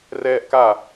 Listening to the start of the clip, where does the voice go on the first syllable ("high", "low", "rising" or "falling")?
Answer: high